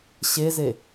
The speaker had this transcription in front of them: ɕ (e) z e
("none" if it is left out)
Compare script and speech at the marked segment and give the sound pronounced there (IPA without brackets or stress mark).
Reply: e